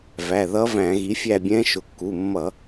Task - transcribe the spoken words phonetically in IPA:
væ˩˧˩ðʌ˧˥væ̃˧˩˧ ɣi˩˥fʲæ˦˨ bʲɛ̃˧˥ ʃʊ˩˥kːu˩˧˩mːʌ˧˩˧

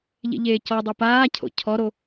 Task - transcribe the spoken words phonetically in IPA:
ʎḛʎeːcɔdˤu paːcʰo̰ cʰɔɾo

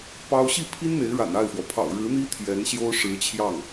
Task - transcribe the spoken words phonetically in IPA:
pɑ˥ʊ̯ ɕi˥˩pʰi˥n n̪e˧˥ɪ̯ɻa̰˨˩na˥˩ɪ̯fwɔ˩ pʰɑ̰˨˩ʊ̯ɻɻ̩˧˥n̪i˥ t̪ʰjɛ˧˥nɕjo˥ʊ̯ ʂɻ̩˧˥t͡ɕʰjɑ˥˩ŋ

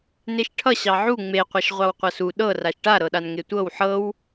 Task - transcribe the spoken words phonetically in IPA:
neʃʈʰʌ ɕɑʕu ŋ͡meqʷʌʃ ʁʷɑwqʷʌsu ɗɤ raʃʈa ɾɤɗanŋetʷɤw ħɤw

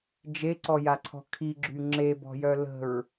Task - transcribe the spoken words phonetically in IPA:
d͡ʒeǀɔjaǀʰɔ̤ kʰiɡ͡ǁy ŋ͡ǁebɔ̤jœ lə̤ɹ

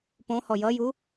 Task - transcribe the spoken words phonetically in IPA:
põ hɔjʌju

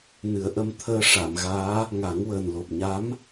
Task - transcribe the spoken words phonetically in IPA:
nɨ˨˩˦ə̯ʔə˧mt̪ʰəː˧ ʂa˨˩˨mɣaː˧˥ | ŋa˨˩˦ŋwəː˨˩n lo˨˩p̚ɲa˧˥m

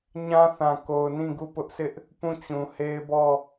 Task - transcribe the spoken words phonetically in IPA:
ɲã˦θã˨ ko˨ʊ̯nĩ˦˨ ɡu˦˨pʊ˦ʔsɪ˦ʔ | pũ˦˨t͡ɕũ˨he˦ɪ̯bɔ˦˨

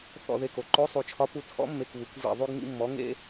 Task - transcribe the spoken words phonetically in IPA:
θɔ̰˧˩ ðe˧˩ko˩˧ ǃo˨˥ sˤu˩˧t͡ʃʰɒ˨˥pu˨˥ tʰɔ̰˨˥mːe˧˩kβu˩˧kʷ vḭ˧˩ ðˤu˦ɡŋḭ˦mːɔ˨˥ ŋḛ˦

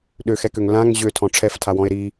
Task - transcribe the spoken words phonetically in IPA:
ɗøxɛkøŋ lãŋ ʑøtʰɔ̃ ʈ͡ʂʰɛftʰawɔ̃e̯ ɾi

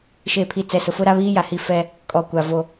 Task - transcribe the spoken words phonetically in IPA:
ʃe˨pʰi˨ t͡sɛ˨sʊ˨fʊ˦ɾa˦ βiː˦ja˨ hi˦fɛ˦ | kʼɔ˨kʷa˨ vo˨

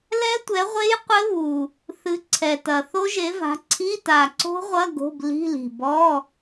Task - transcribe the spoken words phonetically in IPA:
lɛ˦˥tʷɛ˨˥ʁʷe˦˥j qʷɘ˦˥βu˨˩ | θɨ˨˥ǀʰɛ˨˩tɐ˨˩ θo˦˥ʒe˨˥va̤˨˥ ǀʰi˧˥˧ta˨˩ǀo̤˦˥ʁʷɐ˧˥˧ ɡo̤˧˥˧b li̤˧˥˧li̤˨˩ bɔ˧˥˧

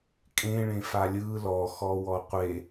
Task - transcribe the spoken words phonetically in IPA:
kʼẽɭẽfa lʲɯ lɔxɔwɔ qʷe

